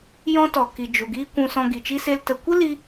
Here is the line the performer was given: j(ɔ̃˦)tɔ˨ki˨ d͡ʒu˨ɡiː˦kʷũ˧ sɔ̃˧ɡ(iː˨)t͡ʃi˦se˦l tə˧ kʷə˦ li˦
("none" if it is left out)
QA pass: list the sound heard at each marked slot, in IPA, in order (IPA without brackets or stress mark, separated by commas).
ɔ̃˦, i˨